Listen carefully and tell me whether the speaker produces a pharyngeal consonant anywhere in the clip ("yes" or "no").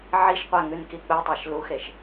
yes